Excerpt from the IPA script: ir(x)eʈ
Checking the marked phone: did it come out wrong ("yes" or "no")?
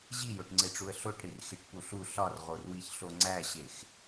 no